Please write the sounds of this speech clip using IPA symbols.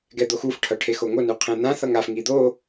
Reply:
ɡɛd̪oxuf ʈʰʌʈʰexoŋo nuqʰẽn̪ã θʌŋaf ŋid̪o

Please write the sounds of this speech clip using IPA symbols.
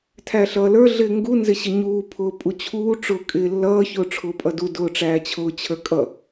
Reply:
tʰæɬʌːlə˞ ɮɪːŋɡu nzɪɕɪɲuː pʰʊːpʼut͡ɕʰuː ʈ͡ʂʊːkʼɪːlːʌː çʊːʈ͡ʂʰʊːpʼʌdu dʊːʈ͡ʂæːt͡ɕʰʊː t͡ɕʰə˞kʼʌ

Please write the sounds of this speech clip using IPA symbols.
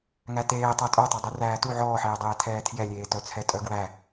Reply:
ŋæteː tˤœtʼœtˤæ dˤyræːtu ʕɔːħeːdˤeː tʰɛːtʰjɛlʲeːtœ t͡sʰɛtʼœɡwæ

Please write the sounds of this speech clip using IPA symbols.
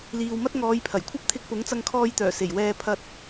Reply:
liː˨wmɐ˥t̚ŋɔː˨˧jpʰɐ˨˩j kʷʰɐ˥p̚t̪ʰɪ˧k̚pʊ˨˥ŋ t͡sɐ˧ŋkʰɔː˧jt̪œː˨˩ se˨˩jwɛː˧ pʰɐ˧t̚

